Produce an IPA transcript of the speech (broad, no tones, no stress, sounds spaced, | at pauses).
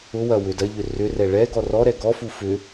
ʊ w ɐ w ʏ d ɐ ʎ ʏ r ʏ r ɛ ɭ ɛ ɡ ɔ r ɔ ɾ ɛ ɡ ɔ f u f ʏ